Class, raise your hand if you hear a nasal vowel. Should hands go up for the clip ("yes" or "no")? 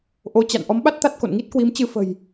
no